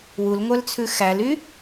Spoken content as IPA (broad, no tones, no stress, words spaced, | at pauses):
wulŋʷœlt͡sʰʉ xæly